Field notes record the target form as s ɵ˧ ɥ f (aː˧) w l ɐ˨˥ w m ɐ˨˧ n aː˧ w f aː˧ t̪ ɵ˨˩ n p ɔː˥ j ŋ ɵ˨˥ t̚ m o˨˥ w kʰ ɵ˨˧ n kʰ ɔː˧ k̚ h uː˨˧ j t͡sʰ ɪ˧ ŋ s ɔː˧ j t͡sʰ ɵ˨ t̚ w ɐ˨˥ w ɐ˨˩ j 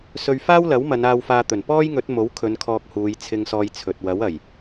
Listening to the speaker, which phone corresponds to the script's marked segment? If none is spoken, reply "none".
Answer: aː˥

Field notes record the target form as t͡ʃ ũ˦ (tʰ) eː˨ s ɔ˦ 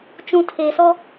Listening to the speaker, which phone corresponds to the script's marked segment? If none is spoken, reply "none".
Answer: tʰ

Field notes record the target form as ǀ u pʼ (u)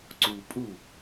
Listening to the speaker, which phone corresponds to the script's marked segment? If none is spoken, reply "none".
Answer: u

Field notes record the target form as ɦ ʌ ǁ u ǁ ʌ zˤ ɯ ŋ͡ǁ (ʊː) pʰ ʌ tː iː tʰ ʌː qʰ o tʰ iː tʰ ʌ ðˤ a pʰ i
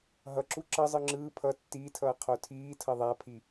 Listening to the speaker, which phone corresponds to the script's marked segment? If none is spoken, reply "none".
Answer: ɯː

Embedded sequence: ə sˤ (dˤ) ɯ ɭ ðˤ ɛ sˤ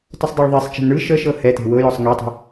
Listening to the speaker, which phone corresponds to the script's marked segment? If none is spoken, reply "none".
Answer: dˤ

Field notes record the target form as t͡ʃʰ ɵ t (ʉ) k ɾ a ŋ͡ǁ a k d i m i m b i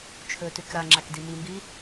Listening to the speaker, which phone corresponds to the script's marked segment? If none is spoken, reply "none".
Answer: ʉ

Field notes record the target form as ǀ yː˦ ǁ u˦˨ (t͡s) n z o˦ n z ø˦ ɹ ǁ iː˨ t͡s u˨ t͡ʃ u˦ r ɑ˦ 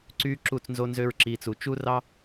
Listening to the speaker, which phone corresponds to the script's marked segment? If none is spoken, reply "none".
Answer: t͡s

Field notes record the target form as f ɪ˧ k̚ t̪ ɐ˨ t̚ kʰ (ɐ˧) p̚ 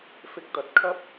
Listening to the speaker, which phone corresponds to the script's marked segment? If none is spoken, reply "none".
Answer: ɐ˥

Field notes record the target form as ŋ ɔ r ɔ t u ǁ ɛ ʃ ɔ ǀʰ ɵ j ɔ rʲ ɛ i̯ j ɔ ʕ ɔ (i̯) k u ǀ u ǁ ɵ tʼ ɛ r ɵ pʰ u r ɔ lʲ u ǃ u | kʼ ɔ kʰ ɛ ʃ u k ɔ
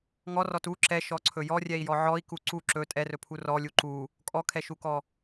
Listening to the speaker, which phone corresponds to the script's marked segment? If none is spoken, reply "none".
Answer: i̯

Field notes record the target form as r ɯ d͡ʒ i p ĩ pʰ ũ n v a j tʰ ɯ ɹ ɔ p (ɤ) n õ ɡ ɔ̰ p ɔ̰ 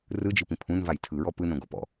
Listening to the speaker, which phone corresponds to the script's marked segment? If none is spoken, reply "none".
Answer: ɯ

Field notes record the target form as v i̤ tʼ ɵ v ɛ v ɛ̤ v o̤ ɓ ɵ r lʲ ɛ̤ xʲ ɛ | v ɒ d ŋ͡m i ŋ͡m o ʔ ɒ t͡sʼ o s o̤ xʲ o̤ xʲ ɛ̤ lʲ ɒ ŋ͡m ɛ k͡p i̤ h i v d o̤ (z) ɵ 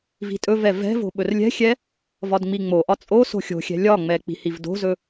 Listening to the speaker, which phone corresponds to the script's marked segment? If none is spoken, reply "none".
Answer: z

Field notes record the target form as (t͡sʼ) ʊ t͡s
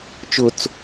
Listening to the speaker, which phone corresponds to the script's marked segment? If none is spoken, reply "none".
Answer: t͡ʃ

